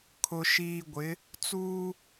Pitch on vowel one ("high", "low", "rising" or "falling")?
low